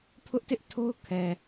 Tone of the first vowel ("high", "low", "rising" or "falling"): high